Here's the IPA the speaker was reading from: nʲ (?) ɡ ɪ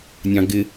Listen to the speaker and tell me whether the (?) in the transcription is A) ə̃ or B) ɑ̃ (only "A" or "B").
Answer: B